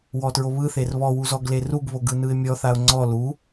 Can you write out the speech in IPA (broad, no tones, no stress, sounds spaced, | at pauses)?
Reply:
w ɔ t ɹ o β ɯ θ e r β ɔ w u z ɔ ɡ l e r u ɡ β o ɡ ɯ n ɯ ɪ̯ mʲ ɔ θ a ʊ̯ ŋ͡ǀ ɔ l u